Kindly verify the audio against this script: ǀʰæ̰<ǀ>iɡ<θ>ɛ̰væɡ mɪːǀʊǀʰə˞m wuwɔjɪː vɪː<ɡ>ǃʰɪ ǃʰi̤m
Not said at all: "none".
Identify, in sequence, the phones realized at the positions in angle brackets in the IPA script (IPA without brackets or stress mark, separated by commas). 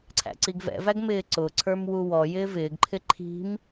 ǀ, v, ɡ